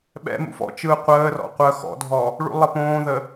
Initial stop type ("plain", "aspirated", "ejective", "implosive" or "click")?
implosive